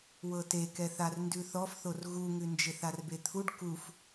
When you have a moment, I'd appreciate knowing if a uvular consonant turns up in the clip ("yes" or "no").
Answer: no